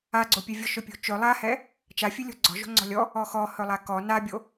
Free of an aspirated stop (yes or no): yes